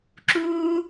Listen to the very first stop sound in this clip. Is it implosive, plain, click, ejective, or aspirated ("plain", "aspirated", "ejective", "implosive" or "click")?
click